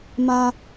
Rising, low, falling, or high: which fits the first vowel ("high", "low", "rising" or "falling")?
low